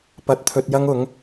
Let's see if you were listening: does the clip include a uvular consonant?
no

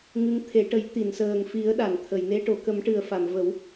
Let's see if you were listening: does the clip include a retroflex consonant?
yes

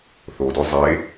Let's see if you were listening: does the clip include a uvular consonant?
no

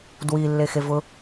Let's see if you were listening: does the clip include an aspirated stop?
no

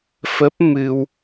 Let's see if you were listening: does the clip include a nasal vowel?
no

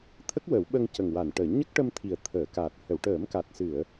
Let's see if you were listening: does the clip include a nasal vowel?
no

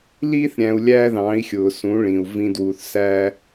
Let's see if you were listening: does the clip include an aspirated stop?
no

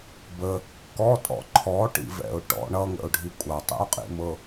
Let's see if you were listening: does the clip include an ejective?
yes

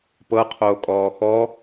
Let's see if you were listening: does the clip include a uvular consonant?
yes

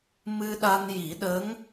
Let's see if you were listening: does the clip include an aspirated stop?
no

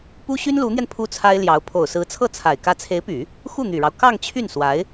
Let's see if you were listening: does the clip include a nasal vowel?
no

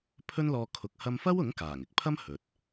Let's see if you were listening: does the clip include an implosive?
no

